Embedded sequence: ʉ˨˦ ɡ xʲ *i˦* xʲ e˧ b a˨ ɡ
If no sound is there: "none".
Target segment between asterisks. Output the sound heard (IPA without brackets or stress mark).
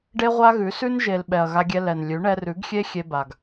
e˦